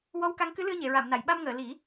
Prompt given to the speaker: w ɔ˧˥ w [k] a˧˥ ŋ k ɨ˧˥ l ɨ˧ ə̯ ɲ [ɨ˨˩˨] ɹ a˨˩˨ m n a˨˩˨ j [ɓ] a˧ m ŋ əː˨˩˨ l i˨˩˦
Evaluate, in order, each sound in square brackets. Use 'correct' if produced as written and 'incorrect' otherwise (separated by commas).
correct, incorrect, correct